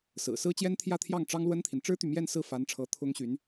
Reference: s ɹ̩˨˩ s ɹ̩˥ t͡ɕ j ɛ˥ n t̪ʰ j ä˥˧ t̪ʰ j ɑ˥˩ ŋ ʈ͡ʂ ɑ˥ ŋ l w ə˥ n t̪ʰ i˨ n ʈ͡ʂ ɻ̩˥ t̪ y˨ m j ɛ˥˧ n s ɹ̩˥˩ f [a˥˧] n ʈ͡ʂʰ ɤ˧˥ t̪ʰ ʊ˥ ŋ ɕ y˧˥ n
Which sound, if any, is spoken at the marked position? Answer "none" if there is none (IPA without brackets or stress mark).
a˧˥